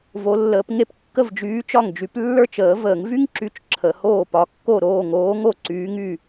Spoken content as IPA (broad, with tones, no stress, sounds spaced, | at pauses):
v o˨˥ lː əː˨˥ p ŋ e˥ p kː ə˥˩ v d͡ʒ yː˨˥ t͡ʃ ɒ˥˩ ŋ d͡ʒ y˨˥ p lː ə˞˥˩ t͡ʃ əː˨˩˦ v əː˨˩˦ ŋ v y˥ ŋ ǁ y˨˥ t͡ʃ ǁʰ ə˨˩˦ h oː˥˩ p ɒ˨˥ kː o˥˩ ɾ oː˥˩ ŋ oː˨˥ ŋ o˥˩ ǀ yː˨˥ ŋ y˥˩